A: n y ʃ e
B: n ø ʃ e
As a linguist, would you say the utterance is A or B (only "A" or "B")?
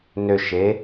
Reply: B